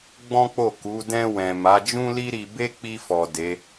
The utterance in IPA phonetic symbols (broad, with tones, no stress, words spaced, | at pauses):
ɡ͡bɔ̃˦k͡po˦˨ ku˨˦ dɛ̃˧wɛ̃˨ ma˨˦d͡ʒũ˦li˦ɾi˧ be˦k͡pi˧fɔ˨ de˨˦